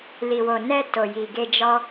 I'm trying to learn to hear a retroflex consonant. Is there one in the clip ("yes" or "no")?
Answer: no